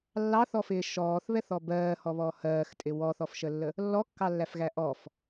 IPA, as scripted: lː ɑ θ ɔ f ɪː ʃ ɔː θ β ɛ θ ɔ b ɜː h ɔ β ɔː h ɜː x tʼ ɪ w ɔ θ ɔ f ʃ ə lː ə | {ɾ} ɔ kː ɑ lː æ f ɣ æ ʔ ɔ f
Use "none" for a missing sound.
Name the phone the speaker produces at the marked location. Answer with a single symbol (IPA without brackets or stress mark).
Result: lː